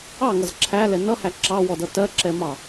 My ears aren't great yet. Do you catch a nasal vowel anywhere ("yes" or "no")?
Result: no